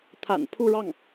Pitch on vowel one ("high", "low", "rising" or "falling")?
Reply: low